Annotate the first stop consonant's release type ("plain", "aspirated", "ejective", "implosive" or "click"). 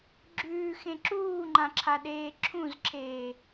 click